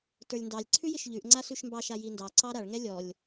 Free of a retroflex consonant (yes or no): no